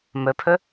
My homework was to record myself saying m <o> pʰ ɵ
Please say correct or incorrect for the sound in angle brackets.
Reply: incorrect